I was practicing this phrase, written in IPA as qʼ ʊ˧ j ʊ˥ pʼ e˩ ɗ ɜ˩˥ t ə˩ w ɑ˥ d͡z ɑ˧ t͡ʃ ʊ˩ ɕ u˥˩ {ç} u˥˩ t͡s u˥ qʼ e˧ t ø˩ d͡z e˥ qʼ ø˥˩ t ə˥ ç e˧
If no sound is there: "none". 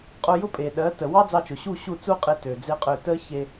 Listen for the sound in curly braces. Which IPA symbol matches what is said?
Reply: ɕ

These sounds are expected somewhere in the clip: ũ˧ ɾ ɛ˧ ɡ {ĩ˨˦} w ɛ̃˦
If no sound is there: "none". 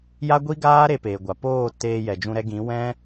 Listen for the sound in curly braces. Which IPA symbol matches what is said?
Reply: ĩ˨˦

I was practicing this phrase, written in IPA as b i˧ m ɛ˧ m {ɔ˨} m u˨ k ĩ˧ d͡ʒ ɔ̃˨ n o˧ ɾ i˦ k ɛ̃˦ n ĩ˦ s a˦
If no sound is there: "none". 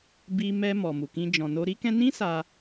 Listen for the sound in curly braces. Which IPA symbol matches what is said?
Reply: ɔ˨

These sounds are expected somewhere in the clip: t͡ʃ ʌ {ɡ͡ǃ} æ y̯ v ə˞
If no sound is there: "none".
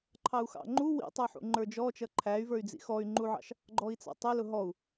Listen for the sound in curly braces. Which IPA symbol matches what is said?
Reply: ǃʰ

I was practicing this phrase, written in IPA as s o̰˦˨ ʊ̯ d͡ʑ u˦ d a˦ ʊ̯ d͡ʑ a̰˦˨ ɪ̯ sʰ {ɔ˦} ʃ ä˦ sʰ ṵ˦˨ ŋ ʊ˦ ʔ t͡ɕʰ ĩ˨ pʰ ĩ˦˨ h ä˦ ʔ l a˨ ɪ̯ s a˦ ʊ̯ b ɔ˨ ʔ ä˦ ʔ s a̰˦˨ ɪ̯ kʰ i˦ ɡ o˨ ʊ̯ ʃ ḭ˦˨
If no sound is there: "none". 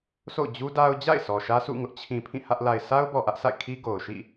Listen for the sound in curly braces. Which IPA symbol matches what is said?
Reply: ɔ˨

